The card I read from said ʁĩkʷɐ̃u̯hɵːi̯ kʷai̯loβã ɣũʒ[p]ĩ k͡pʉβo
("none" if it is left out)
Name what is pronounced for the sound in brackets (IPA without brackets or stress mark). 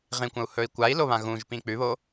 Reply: p